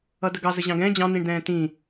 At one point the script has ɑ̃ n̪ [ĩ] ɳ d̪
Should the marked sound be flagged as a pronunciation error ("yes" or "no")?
no